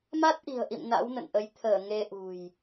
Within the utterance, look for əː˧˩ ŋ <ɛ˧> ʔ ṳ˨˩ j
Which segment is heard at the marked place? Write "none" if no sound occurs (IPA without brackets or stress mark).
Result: e˧